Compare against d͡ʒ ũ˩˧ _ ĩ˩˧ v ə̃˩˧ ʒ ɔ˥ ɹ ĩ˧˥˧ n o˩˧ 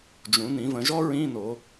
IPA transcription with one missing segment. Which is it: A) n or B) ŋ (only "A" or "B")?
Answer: A